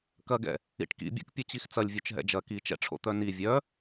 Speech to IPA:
k ɐ ɡ ɛ̰ | ḭ ʈ k ḭ bʲ ɛ̰ k pʲ ɐ t͡ɕ i x t͡s ɐ lʲ vʲ œ t͡ʃ ɦ ɛ̰ d͡ʒ ɐ k i t͡ʃ ɛ̰ ʈ͡ʂʰ o̰ t̪ œ n i vʲ œ

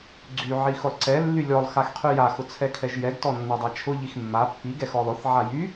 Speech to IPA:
ɡ͡ǀ y ʕ i x ʊ lˠ ǀ ɛ lː y lʲ ɔ lˠ x a x qʰ y j a x ʊ t͡sʰ ɛ kʰ ɛ ʒ j ɛ ɡ t ɔ nː a dˤ a t͡ʃʰ ʊ ʎ i x mː a pː i ɡ ɛ x ɔ lˠ ʊ θ ʕ a j y

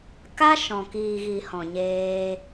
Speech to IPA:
k a˦ ʃ ɔ̃˨ k iː˨ ɣ i˨ h ɔ̃˨ ɲ eː˧

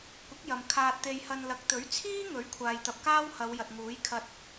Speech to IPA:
kʷ ɪ˨˥ k̚ j ɐ˨ m kʰ aː˧ t̚ t̪ e˧ j h ɐ˧ n l ɐ˨˥ k̚ t̪ ɵ˨˥ ɥ t͡sʰ iː˥ ŋ ɵ˨˥ ɥ kʷʰ aː˨ j t̪ ɐ˨ p̚ k aː˥ w h ɐ˨˧ w j ɐ˨ t̚ ŋ uː˨˥ j kʰ ɐ˧ t̚

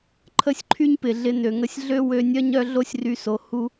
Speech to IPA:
ǃʰ ə˦ sʲ ǃʰ y˦ ɲ p ɪ˨ ɮ ɪ˧ n ø˨ ŋ ə˧ sʲ ɮ ø˦ w ø˧ nʲ œ˦ ɲ œ˦ ɮ o˦ sʲ r y˧ s o˨ h u˦

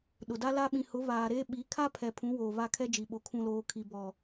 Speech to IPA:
ɗ ʊ˨ d a˦ l a˦ ɓ ĩ˨ h ʊ˨˦ β aː˨ ɾ eː˦ ɓ i˨˦ kʰ a˦ pʰ ɛ˨ pʰ ũ˨˦ w oː˨ β a˦˨ kʰ ɛ˦ d͡ʒ i˨ ɓ o˨ kʰ ũ˨ l oː˨ kʰ i˨ b ɔ˨

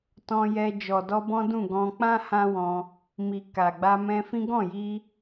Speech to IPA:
t ɔ̃˧ j ɛ˧ d͡ʒ ɔ˨ d ɔ˧ b ɔ̃˦ d ũ˦˨ ɡ ɔ̃˧ k͡p ã˦ h ã˦ w ɔ̃˧ | m i˨ k a˨ ɡ͡b a˧ m ɛ̃˧ f ĩ˦ ɡ ɔ̃˦˨ j i˧

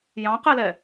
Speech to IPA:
j ɑ̃ q ɛ l ɛ

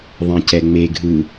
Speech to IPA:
ðˤ ɛ̃ c ɛ ŋ͡m e ɡʱ ɯ

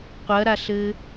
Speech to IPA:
qʷ ɐ ɾ a ɬ ɘ

